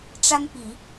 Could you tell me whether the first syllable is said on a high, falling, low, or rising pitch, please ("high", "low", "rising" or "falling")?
high